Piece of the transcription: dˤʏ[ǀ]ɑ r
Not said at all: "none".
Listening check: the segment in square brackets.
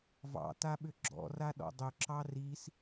ǁ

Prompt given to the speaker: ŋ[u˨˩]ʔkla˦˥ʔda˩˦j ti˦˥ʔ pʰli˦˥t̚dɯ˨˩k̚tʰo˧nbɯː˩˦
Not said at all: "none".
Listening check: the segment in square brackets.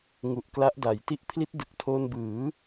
u˨˩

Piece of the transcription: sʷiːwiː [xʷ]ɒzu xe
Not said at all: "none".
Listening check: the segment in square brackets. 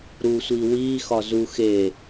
x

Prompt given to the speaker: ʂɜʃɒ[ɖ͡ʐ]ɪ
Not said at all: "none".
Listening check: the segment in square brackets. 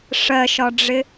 ɖ͡ʐ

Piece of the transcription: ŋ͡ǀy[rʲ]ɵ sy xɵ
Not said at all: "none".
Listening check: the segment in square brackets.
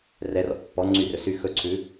r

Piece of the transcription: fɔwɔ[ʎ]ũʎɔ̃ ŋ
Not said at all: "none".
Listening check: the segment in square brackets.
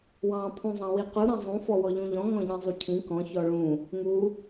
ʎ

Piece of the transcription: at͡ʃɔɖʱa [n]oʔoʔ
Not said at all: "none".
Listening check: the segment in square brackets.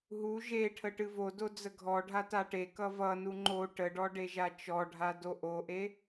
d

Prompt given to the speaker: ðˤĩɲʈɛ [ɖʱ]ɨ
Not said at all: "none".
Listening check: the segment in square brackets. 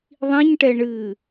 ɳ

